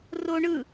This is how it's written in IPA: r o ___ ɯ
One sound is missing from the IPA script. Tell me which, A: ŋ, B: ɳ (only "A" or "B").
B